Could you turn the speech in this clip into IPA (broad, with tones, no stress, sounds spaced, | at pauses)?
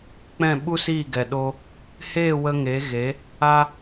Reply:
k͡p ɛ̃˦˨ ɓ u˦ s iː˦˨ ɡ ɛ˨ ɗ o˧ | h eː˦˨ w ə˧ ŋ e˨˦ ɣ e˨˦ | a˦